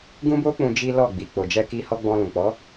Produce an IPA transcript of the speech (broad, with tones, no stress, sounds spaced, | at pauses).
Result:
ɡ ũ˦ b o˦ k͡p ũ˧ d͡ʒ i˦ l ɔ˦˨ ɡ͡b i˨ k͡p o˨ d͡ʒ ɛ˧ k i˧ h ɔ˧ ɡ͡b ɔ̃˧ l ũ˨ k͡p ɔ˨˦